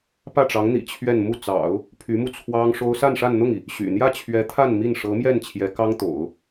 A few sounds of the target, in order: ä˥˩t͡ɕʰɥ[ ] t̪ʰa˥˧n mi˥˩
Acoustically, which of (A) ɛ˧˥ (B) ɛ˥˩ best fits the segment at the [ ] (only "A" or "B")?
A